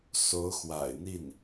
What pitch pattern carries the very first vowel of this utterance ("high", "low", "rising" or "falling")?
rising